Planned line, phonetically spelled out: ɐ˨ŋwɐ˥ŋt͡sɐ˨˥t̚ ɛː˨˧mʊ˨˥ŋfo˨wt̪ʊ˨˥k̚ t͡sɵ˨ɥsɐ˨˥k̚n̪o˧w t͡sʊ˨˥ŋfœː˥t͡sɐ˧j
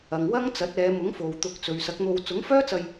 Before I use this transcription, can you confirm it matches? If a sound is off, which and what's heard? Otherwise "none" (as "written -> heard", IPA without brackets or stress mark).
none